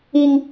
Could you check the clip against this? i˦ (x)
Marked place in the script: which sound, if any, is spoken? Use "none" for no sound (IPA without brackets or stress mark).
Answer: ŋ